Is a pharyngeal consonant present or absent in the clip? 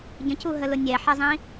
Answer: present